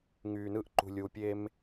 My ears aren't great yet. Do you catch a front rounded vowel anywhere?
yes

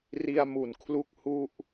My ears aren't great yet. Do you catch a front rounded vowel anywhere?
no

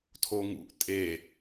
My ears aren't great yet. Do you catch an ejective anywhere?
yes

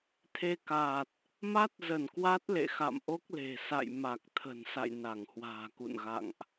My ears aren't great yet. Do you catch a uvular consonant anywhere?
no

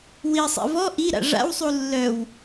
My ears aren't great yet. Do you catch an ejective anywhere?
no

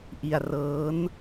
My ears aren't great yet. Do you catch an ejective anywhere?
no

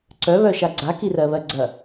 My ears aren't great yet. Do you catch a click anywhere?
yes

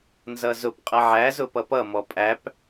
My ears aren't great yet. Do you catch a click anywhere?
no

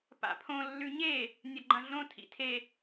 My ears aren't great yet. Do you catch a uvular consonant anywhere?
no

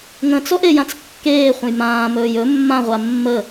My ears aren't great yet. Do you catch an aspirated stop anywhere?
no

